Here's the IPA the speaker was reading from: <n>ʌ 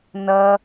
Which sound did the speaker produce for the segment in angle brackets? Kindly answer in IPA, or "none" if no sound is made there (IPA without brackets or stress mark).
n